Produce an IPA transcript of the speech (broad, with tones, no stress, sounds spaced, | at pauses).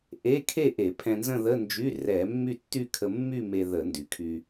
ʔ e˧˥˧ kʰ e˥˧ ʔ e˧˩˧ pʰ ɛ̃˧ n z ə̃˥˧ ð ə˧˥˧ n d͡ʒ y˧˥˧ r ɛ˧˩˧ mː y˥˧ tː y˥˧ kʰ ə˧ mː y˥˧ m e˧ ð ə˧˩˧ n d y˩˧ kʰ y˧